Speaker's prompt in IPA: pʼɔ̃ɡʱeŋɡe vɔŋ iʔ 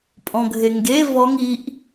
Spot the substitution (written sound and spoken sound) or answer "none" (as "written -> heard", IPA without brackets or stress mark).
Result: none